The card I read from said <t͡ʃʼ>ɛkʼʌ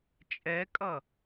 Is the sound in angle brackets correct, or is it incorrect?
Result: correct